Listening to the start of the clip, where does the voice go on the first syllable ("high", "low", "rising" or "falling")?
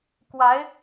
rising